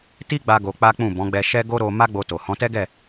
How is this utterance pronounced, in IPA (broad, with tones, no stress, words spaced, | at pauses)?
ti˦ɡ͡ba˧ ɡo˧k͡pa˦k͡pũ˦˨ bɔ̃˨˦ɡ͡bɛ˧ʃɛ˦ ɡo˦ɾo˧ ma˦ɡ͡bo˧to˨ hɔ̃˨˦tɛ˦ɡɛ˦˨